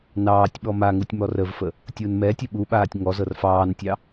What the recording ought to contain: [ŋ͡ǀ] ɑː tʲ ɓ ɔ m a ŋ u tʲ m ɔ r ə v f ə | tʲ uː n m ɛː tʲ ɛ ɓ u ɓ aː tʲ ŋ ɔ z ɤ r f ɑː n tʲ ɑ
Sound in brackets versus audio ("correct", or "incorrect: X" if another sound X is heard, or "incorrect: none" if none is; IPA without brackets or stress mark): incorrect: n